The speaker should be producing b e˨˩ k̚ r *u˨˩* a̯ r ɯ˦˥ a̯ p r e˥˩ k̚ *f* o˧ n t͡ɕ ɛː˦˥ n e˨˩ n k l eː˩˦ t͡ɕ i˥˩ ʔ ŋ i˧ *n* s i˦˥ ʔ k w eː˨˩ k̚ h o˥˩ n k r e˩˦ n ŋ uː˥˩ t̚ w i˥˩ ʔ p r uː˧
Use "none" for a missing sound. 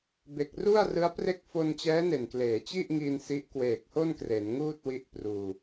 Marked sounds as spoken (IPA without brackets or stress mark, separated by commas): u˥˩, f, n